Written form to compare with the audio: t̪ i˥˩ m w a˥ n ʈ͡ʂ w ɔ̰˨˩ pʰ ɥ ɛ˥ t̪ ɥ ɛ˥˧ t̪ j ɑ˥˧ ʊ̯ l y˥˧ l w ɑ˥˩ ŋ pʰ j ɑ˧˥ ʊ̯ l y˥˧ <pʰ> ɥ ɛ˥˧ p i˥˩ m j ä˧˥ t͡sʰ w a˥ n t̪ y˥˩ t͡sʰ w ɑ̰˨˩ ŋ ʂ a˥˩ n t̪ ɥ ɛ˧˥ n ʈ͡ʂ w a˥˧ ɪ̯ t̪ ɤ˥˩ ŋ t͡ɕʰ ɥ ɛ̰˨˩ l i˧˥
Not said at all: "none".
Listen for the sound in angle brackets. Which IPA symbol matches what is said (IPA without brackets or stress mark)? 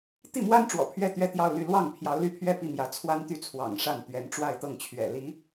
pʰ